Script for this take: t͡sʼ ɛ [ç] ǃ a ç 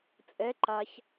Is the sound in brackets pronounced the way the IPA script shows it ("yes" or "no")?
no